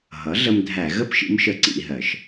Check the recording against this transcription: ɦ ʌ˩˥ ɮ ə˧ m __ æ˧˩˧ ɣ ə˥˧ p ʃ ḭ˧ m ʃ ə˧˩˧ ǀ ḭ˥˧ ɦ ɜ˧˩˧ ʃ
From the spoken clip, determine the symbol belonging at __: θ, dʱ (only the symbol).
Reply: dʱ